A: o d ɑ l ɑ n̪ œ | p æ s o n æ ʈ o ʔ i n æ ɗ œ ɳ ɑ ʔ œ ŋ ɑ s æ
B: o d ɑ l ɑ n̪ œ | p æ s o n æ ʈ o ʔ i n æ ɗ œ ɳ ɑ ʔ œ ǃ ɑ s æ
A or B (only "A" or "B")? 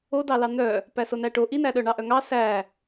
A